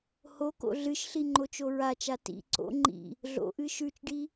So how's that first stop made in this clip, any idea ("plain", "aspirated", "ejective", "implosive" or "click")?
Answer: plain